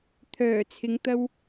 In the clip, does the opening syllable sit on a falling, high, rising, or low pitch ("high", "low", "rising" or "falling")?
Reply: low